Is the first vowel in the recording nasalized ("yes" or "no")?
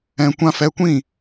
yes